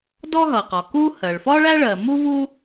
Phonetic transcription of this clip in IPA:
d ɔ˥ ɦ ʌ˩ q ɒ˩ k u˥ h ɜ˩ ɭ f ɒ˥ ɭ æ˥ ɭ ɜ˩ m u˥ v u˥

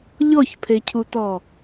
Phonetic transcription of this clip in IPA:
ʎ ɔ ç pʰ e cʰ u t ɔ

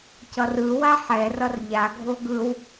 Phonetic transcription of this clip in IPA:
c ʌ r ɯ w a ħ ɛ r ʌ r ʎ a ɡʱ o ɡ ɯ w

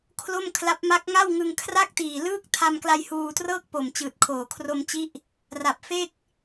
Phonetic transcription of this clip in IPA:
kʰ l o˥˩ m kʰ l a˦˥ p̚ m a˦˥ k̚ ŋ a˥˩ w ŋ ɯ˧ ŋ kʰ r a˥˩ k̚ t iː˨˩ l ɯː˥˩ k̚ tʰ a˧ m k l a˧ j h uː˧ t r ɤː˥˩ k̚ p o˨˩ m t͡ɕ ɯː˨˩ t̚ kʰ oː˨˩ kʰ r o˧ m t͡ɕ i˦˥ ʔ | r a˨˩ p̚ f e˥˩ k̚

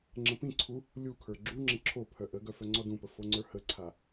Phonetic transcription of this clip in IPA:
ŋ͡ǁ ə̃ p ĩ ǀʰ u | lʲ u kʰ ə˞ ɡ͡ǁ u ŋ͡ǁ ə̃ ǁʰ o pʰ œ ʔ ə ɡ œ f œ ŋ͡ǀ ɔ d ũ p ə f o ŋ͡ǀ ə˞ h ə ǀʰ a

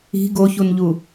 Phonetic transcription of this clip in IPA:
i̤ ɡ o ç u n ʎ u

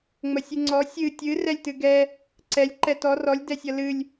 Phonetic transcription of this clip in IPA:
ŋ͡m ə sʲ ɨ ŋ͡ǀ ɔ sʲ ɨ tʲ ɨ r ɛ lʲ t ɨ ɡ ɛ | ǀ ɛ lʲ ǃ ɛ t ɔ r ɔ lʲ d ɛ sʲ ʌ l ɨ lʲ

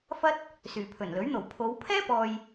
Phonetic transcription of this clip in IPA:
f ɐ˥ t̚ | s yː˨˩ pʰ ɵ˨˩ n l ɵ˨˥ ɥ n̪ o˨˩ w pʰ o˨˧ w pʰ ɛː˥ p ɔː˨ j

